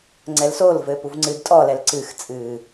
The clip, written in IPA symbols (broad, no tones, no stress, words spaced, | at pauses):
ŋ͡ǀɛlsol vɘːpuvŋ͡ǀɨd tʼɔlɛl ǀɨxt͡sʼɨː